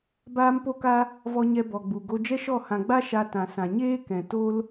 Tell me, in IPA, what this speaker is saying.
baː˦mpo˦ka˦ | vɔ˧ɲɛ˧ bɔ˨ɡ͡bu˨ɡo˧ d͡ʒɛ˦ʃɔ˦˨ hã˨ɡ͡ba˦ ʃa˧tã˨sã˨ ɲeː˦kɛ̃˨ to˦l

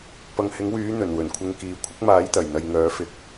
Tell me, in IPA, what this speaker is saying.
pɐ˨ŋhɪ˨˥ŋwyː˨˥ n̪ɵ˨˩nwɵ˨˩nkʷʰɪ˧ŋ kiː˨kʷʰɪ˥k̚ maː˨˥jt̪ɐ˨˩jn̪ɐ˨jŋœː˨˥ fɪ˨k̚

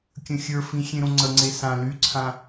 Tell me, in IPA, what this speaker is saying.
kʲə̃xʲə˞fĩ xʲẽɾõŋ͡ǀəŋ͡ǀe sã lyǀʰã

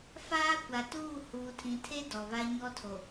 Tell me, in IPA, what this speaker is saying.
faː˦kʷa˨tuː˦˨ huː˨tʰĩ˨tʰe˦ dɔ˨βa˦ɲɔ˦tʰo˨

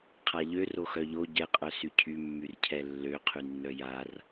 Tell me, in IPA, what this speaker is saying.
qʰaʎø roxœʎo ɟɛqʼœ sycʰymːyr cʰɛlːø qʰynːœjar

